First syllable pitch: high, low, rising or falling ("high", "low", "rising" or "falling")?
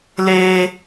high